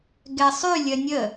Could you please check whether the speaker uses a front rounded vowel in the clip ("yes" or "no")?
yes